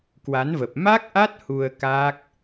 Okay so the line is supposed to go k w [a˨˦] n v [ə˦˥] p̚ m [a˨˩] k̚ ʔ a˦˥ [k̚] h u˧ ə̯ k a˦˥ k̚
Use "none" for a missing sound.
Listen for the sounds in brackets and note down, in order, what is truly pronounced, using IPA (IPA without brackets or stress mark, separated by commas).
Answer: a˨˦, ə˨˩, a˦˥, t̚